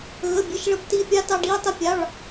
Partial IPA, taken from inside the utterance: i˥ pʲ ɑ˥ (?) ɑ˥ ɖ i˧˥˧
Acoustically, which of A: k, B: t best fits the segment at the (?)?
B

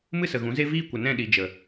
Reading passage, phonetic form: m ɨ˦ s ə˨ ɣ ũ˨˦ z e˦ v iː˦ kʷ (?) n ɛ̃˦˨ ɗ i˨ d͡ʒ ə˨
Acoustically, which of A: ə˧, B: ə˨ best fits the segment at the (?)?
B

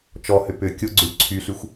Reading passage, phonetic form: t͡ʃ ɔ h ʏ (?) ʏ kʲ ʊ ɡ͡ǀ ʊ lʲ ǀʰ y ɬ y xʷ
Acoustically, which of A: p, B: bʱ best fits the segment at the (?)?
A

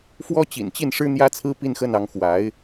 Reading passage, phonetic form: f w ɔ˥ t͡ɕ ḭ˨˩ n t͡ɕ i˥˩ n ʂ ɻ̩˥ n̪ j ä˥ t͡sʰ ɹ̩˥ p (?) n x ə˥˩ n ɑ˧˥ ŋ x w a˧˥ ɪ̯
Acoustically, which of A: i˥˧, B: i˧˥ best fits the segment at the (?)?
A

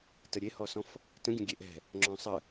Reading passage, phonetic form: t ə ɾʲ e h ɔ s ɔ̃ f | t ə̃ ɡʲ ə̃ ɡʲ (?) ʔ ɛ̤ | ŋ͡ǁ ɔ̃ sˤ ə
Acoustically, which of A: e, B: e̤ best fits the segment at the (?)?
A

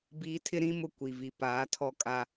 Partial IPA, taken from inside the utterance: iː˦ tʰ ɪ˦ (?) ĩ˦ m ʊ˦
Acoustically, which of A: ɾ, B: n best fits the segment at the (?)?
A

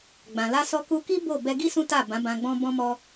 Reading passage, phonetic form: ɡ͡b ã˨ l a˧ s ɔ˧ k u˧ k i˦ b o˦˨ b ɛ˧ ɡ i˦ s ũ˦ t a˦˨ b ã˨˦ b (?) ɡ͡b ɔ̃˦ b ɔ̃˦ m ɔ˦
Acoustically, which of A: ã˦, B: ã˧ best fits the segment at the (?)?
B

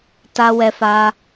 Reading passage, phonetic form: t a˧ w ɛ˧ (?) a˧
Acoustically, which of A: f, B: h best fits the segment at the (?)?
A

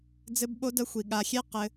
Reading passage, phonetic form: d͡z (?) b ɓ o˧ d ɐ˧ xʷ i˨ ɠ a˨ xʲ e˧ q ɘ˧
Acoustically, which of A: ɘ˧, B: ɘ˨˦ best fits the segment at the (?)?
A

